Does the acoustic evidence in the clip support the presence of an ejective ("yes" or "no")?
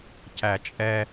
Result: yes